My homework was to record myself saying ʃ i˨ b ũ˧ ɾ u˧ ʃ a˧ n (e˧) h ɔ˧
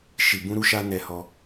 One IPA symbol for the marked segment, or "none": ɛ˧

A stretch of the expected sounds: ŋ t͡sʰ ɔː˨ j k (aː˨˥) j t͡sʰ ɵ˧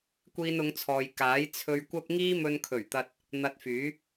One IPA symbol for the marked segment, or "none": aː˨˥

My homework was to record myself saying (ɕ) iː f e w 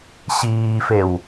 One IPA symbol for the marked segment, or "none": ɕ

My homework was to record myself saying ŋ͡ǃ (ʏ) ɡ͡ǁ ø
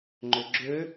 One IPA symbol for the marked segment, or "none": ʏ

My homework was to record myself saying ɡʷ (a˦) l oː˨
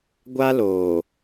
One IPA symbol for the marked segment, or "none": a˦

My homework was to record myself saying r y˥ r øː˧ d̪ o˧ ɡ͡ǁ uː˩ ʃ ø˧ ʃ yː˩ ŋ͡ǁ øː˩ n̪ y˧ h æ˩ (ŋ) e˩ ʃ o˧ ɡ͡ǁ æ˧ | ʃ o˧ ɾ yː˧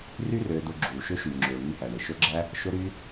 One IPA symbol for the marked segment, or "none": ɳ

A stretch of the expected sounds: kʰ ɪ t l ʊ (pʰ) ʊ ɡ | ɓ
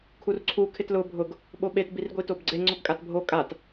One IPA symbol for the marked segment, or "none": bʱ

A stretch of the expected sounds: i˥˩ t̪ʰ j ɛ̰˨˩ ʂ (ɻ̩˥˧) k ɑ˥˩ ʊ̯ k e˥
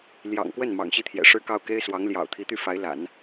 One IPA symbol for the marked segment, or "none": ɻ̩˥˧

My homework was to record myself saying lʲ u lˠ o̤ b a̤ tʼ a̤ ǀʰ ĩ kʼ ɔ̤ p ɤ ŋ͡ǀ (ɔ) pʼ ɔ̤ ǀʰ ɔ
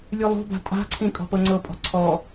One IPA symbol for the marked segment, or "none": ɤ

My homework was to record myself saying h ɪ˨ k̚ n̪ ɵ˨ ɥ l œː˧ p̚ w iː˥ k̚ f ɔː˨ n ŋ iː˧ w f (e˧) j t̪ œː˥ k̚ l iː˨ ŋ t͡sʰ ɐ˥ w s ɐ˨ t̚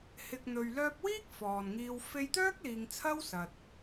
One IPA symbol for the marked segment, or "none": e˧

